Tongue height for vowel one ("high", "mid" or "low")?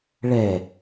mid